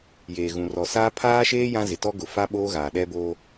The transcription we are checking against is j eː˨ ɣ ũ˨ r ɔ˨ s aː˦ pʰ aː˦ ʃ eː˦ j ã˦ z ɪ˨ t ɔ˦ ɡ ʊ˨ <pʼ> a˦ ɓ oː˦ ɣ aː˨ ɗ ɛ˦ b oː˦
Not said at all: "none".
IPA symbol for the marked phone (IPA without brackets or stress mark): f